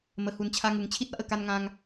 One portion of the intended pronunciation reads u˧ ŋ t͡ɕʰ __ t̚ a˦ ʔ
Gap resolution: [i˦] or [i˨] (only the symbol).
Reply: i˦